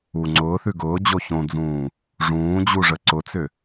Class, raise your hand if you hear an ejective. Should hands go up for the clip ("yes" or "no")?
no